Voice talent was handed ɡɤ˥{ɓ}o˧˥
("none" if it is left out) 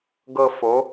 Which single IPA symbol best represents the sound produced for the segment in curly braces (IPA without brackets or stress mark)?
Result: f